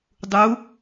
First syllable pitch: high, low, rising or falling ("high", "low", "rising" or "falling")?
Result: rising